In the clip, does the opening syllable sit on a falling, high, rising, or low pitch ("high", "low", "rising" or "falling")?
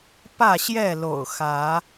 falling